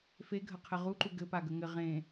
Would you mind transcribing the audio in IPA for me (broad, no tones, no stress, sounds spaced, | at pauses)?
f e ɡʱ ə qʰ ɘ ʁ u ǃ u ɡ ɘ p a ɡ ə ŋ ɘ ʁ ẽ